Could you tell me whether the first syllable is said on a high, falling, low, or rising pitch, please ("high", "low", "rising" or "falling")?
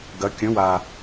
rising